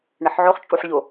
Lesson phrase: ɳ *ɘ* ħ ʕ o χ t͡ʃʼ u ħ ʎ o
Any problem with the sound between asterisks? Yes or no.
no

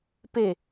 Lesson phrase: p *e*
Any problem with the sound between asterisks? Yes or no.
no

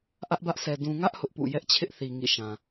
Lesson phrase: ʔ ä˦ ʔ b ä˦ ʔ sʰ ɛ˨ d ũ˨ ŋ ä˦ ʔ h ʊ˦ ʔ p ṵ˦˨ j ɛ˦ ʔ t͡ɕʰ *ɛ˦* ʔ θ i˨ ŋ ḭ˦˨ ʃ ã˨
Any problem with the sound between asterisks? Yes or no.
yes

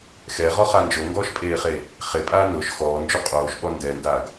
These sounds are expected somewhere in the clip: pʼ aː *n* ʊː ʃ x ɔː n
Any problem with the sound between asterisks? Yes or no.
no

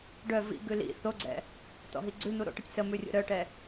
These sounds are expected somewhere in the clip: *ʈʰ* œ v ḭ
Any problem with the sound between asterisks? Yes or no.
yes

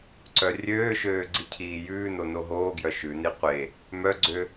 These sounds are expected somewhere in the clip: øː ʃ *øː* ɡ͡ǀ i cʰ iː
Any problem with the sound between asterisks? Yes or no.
no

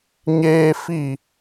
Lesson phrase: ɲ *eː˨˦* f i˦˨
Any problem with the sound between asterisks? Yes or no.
yes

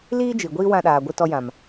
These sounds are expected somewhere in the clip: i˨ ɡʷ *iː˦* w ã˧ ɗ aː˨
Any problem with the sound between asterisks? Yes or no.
no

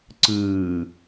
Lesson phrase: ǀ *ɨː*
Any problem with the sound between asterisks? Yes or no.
no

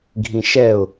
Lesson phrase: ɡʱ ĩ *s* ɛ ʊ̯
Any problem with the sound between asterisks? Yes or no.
yes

